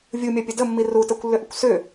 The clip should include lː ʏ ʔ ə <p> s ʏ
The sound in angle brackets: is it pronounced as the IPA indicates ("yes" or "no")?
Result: no